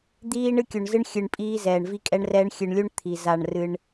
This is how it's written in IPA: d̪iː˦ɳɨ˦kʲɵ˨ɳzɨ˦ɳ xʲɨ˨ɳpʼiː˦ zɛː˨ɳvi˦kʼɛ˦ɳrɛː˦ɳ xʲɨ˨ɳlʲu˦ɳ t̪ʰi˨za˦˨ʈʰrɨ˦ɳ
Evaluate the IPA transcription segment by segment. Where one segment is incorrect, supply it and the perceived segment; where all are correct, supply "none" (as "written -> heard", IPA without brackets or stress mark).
ʈʰ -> ɳ